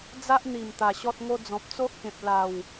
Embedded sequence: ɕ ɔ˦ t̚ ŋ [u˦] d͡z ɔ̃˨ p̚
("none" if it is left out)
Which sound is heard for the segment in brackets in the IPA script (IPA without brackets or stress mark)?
o˦